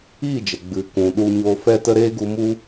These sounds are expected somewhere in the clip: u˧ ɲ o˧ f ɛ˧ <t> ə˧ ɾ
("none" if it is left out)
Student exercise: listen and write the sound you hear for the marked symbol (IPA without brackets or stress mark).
t